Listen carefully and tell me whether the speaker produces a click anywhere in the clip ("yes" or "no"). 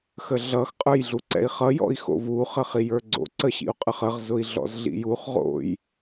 yes